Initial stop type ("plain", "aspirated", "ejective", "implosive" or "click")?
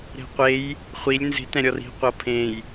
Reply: plain